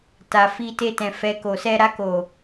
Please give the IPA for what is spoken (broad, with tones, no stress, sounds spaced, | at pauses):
t a˨ f i˧ t e˧ t ɛ̃˨ f ɛ˨ k o˨ s ɛ˧ ɾ a˧ k o˨